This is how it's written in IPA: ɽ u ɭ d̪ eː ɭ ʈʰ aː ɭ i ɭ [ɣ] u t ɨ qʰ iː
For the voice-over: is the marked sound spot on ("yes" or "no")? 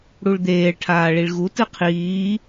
yes